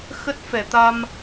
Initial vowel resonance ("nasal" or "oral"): oral